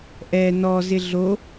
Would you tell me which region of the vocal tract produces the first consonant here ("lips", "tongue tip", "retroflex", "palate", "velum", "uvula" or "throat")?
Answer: throat